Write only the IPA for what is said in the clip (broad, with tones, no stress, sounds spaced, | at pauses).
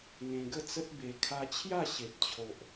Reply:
ŋ ẽ˧ ɡ ə˦ t͡s ə˦ t̚ b e˧ kʰ a˧ t͡ɕʰ j a˥˧ ɕ e˨ p̚ t͡ɕʰ o˨ ʔ